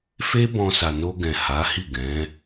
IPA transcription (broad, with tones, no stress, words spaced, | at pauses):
fe˦bɔ̃˧ sa˨no˧ɡɛ̃˨ ha˨˦hi˦˨ ɡɛ̃˨˦